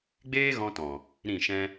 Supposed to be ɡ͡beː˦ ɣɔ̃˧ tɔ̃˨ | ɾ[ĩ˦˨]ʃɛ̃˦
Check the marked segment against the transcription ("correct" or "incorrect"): correct